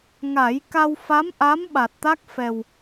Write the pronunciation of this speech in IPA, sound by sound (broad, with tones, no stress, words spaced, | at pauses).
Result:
ŋa˨˩˦j ka˧wfa˧˥mʔa˧˥m ɓa˨˩t̚t̪a˦˥k̚ fɛ˨˩w